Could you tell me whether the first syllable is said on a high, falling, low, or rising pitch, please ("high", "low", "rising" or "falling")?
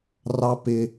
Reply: high